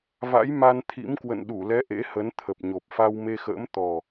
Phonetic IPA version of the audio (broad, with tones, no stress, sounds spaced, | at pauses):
v a̰˧˥ j m a˧ n t̪ʰ ḭ˧˥ m k w ə̰˧˨ n ɗ u˧˩ l ɛ˨˦ ʔ ḛ˧˥ h ə˨˦ n t̪ʰ ə˨˩ p̚ ɲ o˨˩ p̚ f a˧ w m e˧ x ə̰ː˧˥ m t̪ ɔ˨˩